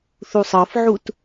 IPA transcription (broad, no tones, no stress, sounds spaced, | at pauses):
θ u sˤ ɤ f ʕ u t